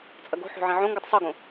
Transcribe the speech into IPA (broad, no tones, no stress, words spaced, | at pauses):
t͡sʼɐɡo̤ħo̤ ʕẽʕõŋɡutˤ sˤoɡõ